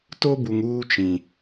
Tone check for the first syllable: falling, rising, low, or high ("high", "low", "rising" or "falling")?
high